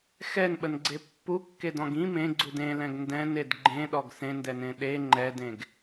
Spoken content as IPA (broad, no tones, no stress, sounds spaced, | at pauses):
x ɛ n ɓ ə n ɡ͡ǀ e pː u kː e d ɔ̃ ɡ ĩ m ẽ ɡ͡ǀ u d ẽ l ɛ̃ ɡ n d ɛ̃ n e d ɡ͡ǃ ẽ ɗ ɔ ɡ s ẽ n d ɛ n ẽ ɗ e ŋ͡ǃ ɛ d ẽ ɡ